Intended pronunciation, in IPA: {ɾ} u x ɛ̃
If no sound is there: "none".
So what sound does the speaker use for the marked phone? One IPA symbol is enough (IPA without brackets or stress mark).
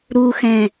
ɾ